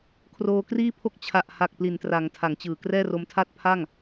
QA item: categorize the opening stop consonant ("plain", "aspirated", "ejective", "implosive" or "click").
aspirated